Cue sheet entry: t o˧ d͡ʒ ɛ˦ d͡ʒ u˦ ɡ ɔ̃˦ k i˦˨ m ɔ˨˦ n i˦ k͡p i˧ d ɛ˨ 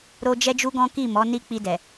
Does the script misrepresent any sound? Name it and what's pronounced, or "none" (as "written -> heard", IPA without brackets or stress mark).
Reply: t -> ɾ